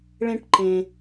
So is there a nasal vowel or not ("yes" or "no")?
yes